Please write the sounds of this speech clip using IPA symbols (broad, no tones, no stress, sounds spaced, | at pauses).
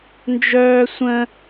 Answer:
n d͡ʒ œː sʷ ə̃